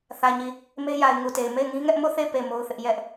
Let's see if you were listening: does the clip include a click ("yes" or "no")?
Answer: no